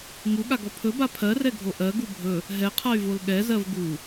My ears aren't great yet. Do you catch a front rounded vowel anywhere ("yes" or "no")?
yes